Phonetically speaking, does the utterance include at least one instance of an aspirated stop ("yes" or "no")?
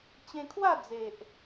yes